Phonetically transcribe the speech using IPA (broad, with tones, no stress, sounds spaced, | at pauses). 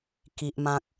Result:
k i˨ ʔ m ã˨ k̚